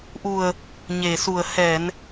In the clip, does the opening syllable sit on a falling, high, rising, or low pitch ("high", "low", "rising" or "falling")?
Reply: low